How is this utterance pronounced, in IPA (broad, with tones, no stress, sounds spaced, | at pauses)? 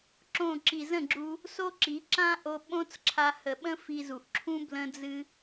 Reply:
ǁ õ˦˨ ǁ i˨ z ə̃˦˨ ɡ͡ǁ u˧ | s o˦ ǁ i˨˦ ǁ ã˦ ʔ o˧ ɓ õ˦ t͡s ǁʰ a˧ h ə˨ ɓ ə̃˦ f i˧ z u˨ ʔ ǁʰ ũ˦ b l ə̃˦ d͡z ɨ˦